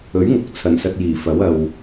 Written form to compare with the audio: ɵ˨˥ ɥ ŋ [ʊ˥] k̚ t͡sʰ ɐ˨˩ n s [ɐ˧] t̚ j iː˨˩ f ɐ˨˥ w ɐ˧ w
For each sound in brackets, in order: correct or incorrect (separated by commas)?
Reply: incorrect, correct